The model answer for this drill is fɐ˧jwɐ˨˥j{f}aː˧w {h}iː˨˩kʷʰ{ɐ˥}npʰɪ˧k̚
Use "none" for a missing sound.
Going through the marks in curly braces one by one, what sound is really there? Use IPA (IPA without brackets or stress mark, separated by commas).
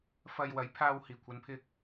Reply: pʰ, h, ɐ˨˧